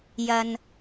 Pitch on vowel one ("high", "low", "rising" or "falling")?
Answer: low